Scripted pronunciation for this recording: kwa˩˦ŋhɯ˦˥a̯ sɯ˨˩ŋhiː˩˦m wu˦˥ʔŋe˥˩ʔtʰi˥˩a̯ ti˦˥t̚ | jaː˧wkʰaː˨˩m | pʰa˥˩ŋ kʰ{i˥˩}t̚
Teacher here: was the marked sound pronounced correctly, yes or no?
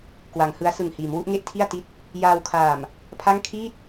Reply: no